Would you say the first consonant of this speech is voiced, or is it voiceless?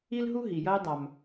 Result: voiced